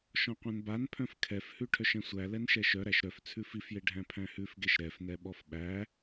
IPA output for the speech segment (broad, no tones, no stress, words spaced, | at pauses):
ʃɔ̃qʷɛ̃nbanpʰœ̃f kʰɛfhʉ ʈʰœʃɛ̃sʷæ lɛnʃɛʃœ ɾæʃɾœf t͡sʰʉfifje ɖʱæ̃pʰæ̃hʉfɡeʃ ɾɛfnɛɓɔf ɓæ